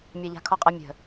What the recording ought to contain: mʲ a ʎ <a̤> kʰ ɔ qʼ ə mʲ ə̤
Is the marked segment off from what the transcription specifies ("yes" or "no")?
no